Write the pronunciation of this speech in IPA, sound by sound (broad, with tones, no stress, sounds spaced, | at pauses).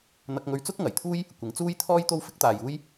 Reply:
n̪ ɐ˧ k̚ ŋ ɵ˧ ɥ t͡s ʊ˥ k̚ ŋ ɐ˨˩ j t̪ʰ uː˥ j | kʷ ɪ˨˧ ŋ t͡s uː˥ j t̪ʰ ɔː˥ j t̪ o˥ w f ɪ˥ k̚ t̪ aː˨ j uː˥ j